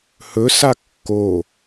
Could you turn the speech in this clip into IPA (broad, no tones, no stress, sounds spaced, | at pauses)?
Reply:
h ɵ s a kː o